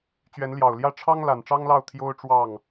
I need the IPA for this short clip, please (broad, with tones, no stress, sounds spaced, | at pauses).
t͡ɕ ɥ ɛ˨˦ n l j ɑ˨˩ ʊ̯ l j ä˥˨ ʈ͡ʂʰ ɑ˦ ŋ l a˨˩ n ʈ͡ʂ ɑ˦ ŋ l ɑ˥˨ ʊ̯ t̪ʰ j o˦ ʊ̯ ʈ͡ʂ w ɑ˥˨ ŋ